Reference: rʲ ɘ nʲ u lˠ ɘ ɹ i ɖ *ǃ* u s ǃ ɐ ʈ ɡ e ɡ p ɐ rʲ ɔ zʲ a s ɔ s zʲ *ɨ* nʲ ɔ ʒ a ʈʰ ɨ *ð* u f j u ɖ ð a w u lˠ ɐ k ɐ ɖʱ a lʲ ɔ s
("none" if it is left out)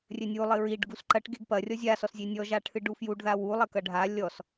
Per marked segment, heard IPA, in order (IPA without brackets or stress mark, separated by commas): ɡ, e, ɖ